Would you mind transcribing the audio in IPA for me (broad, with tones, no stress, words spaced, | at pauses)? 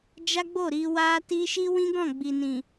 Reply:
d͡ʒa˦ɡ͡bo˦˨ɾi˧ wa˦ti˦ ʃi˦wĩ˦ɡɔ̃˦˨ ɡ͡bi˨nĩ˨